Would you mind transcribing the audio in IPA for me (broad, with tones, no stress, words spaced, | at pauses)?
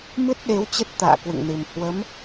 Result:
mɨ˦˥t̚ɗe˨˦w t͡ɕə˦˥t̚t̪a̰ː˧˨kwɨ̰˧˨ŋnɨ˨˩m hwə˨˦m